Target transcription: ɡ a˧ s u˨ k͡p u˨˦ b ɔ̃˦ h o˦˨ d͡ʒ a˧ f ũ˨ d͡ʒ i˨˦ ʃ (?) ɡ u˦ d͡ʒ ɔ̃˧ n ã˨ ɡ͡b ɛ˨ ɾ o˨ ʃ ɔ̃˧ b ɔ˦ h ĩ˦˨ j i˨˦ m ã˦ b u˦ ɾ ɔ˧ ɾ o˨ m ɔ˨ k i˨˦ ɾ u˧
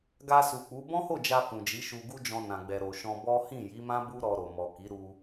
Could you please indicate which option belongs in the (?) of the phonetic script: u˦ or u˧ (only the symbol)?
u˧